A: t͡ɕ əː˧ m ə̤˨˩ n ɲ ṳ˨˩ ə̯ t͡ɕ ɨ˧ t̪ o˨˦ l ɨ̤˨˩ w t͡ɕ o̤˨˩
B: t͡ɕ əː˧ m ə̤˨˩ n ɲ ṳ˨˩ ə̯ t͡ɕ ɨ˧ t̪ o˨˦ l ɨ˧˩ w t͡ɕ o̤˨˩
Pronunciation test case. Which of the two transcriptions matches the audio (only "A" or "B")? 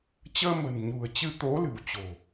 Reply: A